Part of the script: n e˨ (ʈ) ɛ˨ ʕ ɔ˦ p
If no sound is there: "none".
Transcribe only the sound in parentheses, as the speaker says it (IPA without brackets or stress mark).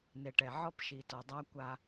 ʈ